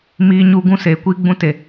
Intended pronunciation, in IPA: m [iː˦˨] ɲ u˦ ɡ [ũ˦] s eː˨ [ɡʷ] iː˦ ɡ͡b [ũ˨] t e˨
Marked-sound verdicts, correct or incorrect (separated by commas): incorrect, correct, incorrect, incorrect